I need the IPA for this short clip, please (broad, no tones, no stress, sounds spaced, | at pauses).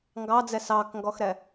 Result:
ŋ ɡ ɑ d͡z ɛ s ɑ k ŋ ɡ ɔ x ɾ ɛ